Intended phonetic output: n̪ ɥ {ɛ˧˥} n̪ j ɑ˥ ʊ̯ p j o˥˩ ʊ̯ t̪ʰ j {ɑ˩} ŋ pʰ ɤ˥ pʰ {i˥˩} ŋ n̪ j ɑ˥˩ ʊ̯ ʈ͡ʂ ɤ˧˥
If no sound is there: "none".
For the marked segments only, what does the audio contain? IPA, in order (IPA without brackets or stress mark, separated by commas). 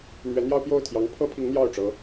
ɛ˧˥, ɑ˧˥, i˧˥